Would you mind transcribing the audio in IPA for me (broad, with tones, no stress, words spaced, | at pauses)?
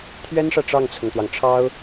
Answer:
t̪ʰɥɛ˥nʂä˨ ʈ͡ʂɑ˥˩ŋt͡sʰʊ˩ŋt̪wɑ˩ŋ ʈ͡ʂʰɑ˥ʊ̯